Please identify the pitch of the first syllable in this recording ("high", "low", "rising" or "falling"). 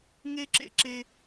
high